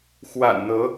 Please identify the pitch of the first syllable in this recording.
low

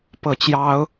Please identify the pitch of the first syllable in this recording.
falling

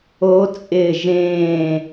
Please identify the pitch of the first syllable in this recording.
rising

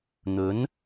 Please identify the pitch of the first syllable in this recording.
rising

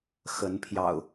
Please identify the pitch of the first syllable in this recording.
rising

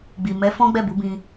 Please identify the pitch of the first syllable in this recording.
low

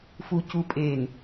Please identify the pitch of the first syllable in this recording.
low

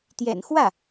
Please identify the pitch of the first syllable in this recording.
low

